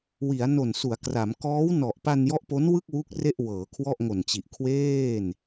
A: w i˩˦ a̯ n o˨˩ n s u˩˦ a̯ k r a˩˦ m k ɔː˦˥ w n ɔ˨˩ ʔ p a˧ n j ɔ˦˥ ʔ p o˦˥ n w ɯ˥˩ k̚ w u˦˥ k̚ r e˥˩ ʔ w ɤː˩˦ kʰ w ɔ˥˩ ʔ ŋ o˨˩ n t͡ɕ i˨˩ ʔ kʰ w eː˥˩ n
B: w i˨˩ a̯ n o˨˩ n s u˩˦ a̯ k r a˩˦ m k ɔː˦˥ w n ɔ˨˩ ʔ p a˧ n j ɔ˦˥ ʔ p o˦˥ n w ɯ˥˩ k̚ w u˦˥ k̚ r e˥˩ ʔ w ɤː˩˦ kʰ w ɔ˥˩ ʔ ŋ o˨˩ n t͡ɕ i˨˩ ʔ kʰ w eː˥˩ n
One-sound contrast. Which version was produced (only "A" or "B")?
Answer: A